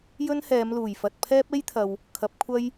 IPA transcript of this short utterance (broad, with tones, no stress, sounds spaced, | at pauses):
j ɵ˥ n h ɛː˨˧ m l uː˨˩ j f ɐ˨ t̚ pʰ ɛː˥ p̚ e˥ j t̪ʰ ɐ˨ w | kʰ ɐ˨˥ p̚ kʷʰ ɐ˥ j